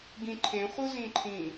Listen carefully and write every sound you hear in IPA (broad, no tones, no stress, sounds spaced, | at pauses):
ɡ ĩ ǃʰ ẽ χʷ ɯ z ĩ ǃʰ ĩ